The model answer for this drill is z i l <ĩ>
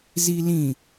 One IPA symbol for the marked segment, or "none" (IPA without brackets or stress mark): ĩ